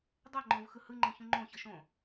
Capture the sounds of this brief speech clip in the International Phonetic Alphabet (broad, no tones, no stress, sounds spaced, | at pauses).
dˤ ɛ ŋ͡ǃ õ v x ɯ h ɯ ŋ͡ǃ ẽ ç ũ ŋ͡ǃ õ ç ʌ ʃ õ